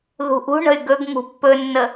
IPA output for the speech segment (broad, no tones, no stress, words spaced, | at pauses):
ðṳʔṳɳə̤y̯ ɡɵɡ ŋṳpːɵnːə